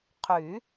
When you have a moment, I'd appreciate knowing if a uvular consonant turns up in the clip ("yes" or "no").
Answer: yes